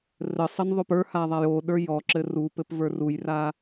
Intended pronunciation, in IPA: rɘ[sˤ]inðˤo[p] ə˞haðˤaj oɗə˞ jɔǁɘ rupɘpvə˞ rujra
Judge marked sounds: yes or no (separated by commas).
yes, yes